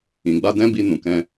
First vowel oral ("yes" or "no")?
no